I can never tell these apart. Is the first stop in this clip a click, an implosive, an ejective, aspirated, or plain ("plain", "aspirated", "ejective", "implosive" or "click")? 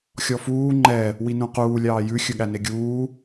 click